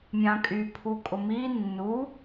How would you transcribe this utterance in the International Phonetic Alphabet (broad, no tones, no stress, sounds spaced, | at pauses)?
mʲ ã kʼ y pʰ u kʼ ʊ m i nː u